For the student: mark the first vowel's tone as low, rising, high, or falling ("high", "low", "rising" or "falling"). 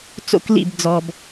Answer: falling